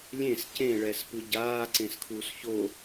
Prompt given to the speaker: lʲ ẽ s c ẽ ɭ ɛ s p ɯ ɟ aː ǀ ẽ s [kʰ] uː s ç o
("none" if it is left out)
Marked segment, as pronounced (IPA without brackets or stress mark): kʰ